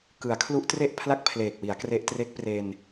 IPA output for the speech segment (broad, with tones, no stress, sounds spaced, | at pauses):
k ɯ˩˦ a̯ kʰ l u˦˥ ʔ t r e˥˩ ʔ pʰ l a˥˩ k̚ pʰ l eː˨˩ k̚ w i˩˦ a̯ k r e˦˥ ʔ t r e˦˥ k̚ p r e˧ n